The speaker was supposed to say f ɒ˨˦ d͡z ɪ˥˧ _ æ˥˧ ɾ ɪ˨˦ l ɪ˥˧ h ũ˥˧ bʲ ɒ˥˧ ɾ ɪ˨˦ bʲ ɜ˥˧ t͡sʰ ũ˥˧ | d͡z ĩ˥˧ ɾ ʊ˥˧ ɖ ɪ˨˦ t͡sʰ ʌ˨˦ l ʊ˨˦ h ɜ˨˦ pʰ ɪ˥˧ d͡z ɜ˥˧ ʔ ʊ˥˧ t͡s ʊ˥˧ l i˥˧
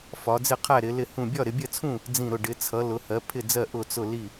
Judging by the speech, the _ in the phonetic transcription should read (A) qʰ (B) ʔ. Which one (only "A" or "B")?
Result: A